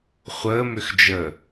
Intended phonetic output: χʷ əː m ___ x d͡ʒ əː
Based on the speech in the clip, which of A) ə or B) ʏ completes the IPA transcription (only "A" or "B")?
B